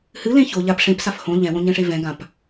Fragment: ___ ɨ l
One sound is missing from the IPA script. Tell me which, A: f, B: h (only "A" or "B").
B